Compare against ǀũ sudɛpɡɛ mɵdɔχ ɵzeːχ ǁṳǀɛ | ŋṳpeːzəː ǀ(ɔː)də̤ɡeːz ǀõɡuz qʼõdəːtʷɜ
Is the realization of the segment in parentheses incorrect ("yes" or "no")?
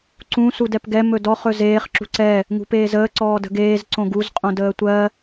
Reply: no